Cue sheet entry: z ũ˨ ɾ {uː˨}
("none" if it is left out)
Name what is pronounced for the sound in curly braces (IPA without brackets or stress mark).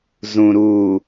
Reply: uː˨